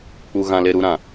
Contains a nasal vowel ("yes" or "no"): yes